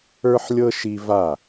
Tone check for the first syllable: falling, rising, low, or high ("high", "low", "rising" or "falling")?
high